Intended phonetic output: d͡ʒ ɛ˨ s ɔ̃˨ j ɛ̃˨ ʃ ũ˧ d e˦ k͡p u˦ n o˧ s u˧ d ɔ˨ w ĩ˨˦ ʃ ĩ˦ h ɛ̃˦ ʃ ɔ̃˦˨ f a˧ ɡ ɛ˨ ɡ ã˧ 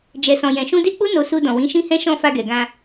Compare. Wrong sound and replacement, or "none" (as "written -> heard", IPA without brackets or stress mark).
ɔ˨ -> ɔ̃˨